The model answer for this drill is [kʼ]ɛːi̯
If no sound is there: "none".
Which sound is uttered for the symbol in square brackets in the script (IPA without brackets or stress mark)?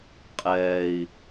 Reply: qʼ